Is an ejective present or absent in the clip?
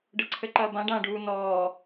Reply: absent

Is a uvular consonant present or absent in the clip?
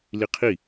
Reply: present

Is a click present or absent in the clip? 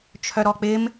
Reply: absent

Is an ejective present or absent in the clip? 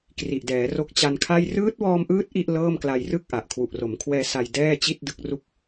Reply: absent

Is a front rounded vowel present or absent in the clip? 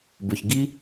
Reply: present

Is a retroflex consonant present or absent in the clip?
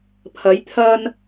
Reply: absent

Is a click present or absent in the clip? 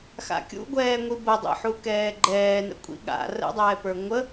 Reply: present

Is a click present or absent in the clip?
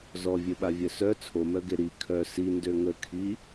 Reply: absent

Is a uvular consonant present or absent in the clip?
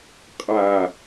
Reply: present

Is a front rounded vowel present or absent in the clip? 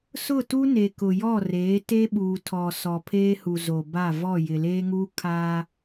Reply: absent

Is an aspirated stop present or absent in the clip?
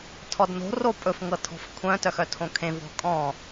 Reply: present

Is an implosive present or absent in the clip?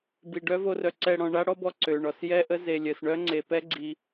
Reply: absent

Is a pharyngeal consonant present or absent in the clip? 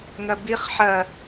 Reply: present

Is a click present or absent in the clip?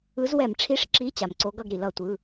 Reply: present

